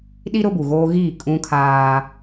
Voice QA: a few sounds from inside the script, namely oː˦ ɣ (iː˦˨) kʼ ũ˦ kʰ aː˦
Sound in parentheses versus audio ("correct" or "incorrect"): correct